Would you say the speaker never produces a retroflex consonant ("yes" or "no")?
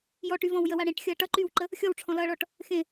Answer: no